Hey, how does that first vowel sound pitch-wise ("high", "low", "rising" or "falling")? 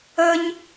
high